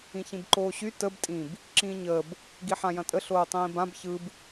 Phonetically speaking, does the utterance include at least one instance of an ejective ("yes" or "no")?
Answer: yes